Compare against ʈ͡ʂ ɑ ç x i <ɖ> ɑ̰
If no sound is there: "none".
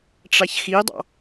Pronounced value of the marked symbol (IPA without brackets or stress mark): dˤ